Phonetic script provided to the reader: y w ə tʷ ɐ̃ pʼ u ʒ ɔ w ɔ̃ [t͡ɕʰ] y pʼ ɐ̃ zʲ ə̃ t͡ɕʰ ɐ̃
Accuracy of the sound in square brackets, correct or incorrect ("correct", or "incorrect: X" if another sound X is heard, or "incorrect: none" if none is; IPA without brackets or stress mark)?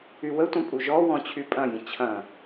correct